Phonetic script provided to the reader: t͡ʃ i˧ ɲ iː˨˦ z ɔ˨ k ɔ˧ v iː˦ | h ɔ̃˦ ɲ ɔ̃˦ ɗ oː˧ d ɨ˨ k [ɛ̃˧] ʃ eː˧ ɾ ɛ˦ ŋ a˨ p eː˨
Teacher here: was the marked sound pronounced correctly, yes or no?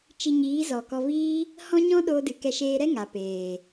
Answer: no